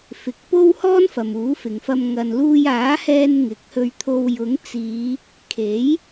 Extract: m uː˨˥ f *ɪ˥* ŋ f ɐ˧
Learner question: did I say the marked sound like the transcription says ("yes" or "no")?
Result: no